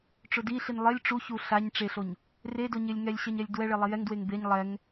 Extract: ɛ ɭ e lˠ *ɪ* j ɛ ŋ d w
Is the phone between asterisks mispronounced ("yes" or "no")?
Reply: yes